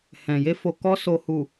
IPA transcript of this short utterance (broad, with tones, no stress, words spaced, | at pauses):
hɛ̃˨ je˧fo˨ kɔ˧ so˨hu˨